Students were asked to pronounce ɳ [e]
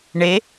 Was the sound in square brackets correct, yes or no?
yes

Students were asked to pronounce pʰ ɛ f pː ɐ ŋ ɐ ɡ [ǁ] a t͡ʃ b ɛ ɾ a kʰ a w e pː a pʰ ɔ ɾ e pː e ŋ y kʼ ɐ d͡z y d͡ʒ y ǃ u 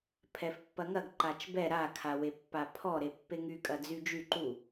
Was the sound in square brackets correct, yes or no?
no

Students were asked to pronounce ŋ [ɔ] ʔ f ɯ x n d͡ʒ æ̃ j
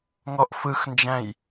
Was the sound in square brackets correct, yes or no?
yes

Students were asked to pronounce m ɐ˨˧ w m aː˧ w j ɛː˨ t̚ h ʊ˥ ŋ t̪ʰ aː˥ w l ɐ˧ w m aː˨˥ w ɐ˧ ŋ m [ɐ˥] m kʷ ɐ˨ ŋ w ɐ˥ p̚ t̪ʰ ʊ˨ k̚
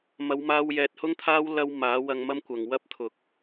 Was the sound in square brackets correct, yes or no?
yes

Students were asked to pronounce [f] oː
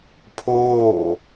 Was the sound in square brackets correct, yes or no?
no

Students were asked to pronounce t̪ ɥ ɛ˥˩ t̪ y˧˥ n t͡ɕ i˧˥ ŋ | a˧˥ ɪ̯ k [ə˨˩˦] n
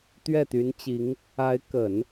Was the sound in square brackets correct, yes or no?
yes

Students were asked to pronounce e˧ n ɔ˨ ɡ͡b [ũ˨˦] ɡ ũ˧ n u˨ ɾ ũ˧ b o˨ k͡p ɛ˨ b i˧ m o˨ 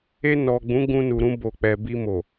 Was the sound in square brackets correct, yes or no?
yes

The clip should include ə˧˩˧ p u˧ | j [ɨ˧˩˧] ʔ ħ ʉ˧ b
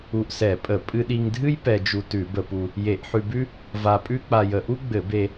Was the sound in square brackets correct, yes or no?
no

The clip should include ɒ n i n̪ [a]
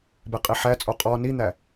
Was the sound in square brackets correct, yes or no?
no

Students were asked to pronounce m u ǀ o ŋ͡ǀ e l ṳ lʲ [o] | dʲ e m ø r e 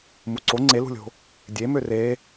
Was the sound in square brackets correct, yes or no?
no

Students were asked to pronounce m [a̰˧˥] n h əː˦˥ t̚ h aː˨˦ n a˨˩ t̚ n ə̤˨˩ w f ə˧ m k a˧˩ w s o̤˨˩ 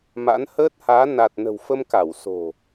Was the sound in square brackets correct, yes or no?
yes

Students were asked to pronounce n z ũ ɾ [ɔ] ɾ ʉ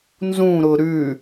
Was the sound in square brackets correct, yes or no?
no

